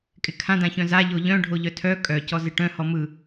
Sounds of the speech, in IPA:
kʼɪkʰãdã çœ̃za ʎoʎœ̃ ɖʱoʎœtʰœ kʼœcɔ zɪʈœ̃hɔ mɯ

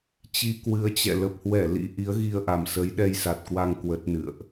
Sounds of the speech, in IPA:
t͡ɕi˧kwɨ˨˦ə̯t͡ɕɛ̰˧˨ lə˨˩p̚hwɛ˧˩ lḭ˧˥ʔi˨˦ə̯ ɣi˧ə̯ʔa˨˩msə˨˦j ɗɛ˧jsa˨˩t̚kwa˧ŋ kwə˦˥t̚nɨ̰˧˨ə̯ʔ

